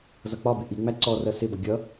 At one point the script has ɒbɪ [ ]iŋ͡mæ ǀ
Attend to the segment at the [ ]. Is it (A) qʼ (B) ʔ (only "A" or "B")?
B